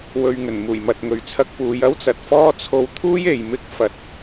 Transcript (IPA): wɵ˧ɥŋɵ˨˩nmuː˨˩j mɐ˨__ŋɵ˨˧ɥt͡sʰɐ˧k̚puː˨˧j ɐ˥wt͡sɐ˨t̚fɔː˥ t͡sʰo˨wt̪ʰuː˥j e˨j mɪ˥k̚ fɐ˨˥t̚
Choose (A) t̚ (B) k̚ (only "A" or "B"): A